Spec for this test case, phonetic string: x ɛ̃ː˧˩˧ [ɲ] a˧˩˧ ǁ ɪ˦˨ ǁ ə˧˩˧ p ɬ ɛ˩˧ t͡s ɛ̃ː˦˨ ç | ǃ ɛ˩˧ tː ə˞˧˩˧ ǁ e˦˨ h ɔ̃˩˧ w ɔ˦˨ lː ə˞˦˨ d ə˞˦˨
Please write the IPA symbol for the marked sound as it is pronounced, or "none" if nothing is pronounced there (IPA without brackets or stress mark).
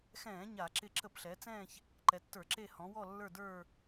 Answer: ɲ